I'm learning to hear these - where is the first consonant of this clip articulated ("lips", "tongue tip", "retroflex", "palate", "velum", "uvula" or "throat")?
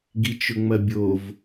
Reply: velum